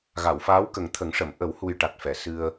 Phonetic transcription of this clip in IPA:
ɣ a˨˩˨ w f aː˧˥ w k ə˨˩ ŋ t̪ʰ ə˨˩˦ ŋ ʂ ə˨˩˨ m ʔ ə˨˩˦ w h u˧ j ʈ a˨˩ t̚ f ɛ˨˩˨ s ɨ˧ ə̯

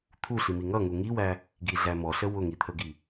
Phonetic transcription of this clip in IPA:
t̪ʰ u ɬ i m i ŋ ʌ ŋ u ŋ i w æ | ɡ i ɮ æ m ɔ ɬ ə w ʊ ŋ i t̪ʰ ə ɡ i

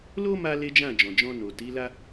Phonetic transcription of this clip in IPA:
l o˦ m a˧ l e˦ d͡ʒ ã˦˨ d͡ʒ ɔ̃˨ d͡ʒ ɔ̃˧ n o˨ t i˨˦ l a˦

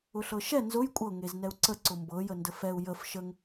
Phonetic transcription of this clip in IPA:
ʊ ɬ ɤ ʃ ɛ n z ʊ j kʷʼ ɤ ŋ e z n ɛ u̯ ǀ ə ǀ ʊ m b ɤ j ə n d ə f ɛ u̯ j ə f ʃ ə ŋ

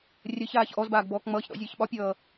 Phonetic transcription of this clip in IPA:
rʲ ə ç aː ç ʔ ɔ z b aː ɡ b ɔː k ŋ͡m ʌː ç ɗ ɔ̰ zʲ əː ç ɓ ɒ pʲ ʌː

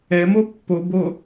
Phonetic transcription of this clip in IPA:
ɛ m o pː o b o

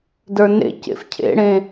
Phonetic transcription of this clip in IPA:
d ə˞ n ḛ c ḛ f cʰ ḛ ɽ ẽ

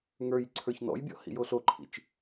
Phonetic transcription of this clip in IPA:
ŋ ə˞ j ǀʰ ə˞ ç n ɔ̰ j bʲ ɔ̰ h ḭ j o ɬ o ǃʰ ḭ t͡ʃ

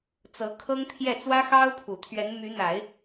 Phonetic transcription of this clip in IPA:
t͡s ɤ˧˥ kʰ ɤ˥ ŋ t̪ʰ j ɛ˥˩ t͡s w ä˥ x ɑ˥ ʊ̯ pʰ u˨˩ t̪ʰ ɥ ɛ˧˥ n m y˧˥ n̪ a˨˩˦ ɪ̯

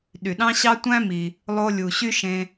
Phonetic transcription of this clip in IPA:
ɗ y˩ ɗ ɑ̃˥ ɕ ɑ˥ tʷ æ̃˥ m i˩ | lˠ o˧ lʲ u˩ ɕ y˥ ʃ ẽ˧

